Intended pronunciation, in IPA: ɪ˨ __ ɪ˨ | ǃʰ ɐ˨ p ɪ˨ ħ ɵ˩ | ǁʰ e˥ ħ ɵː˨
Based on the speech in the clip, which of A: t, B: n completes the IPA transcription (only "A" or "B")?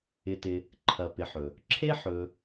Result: A